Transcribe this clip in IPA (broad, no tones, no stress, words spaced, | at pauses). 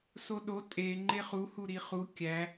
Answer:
soɗo tʼe ŋ͡ǃeχu huɾiχu kʲæ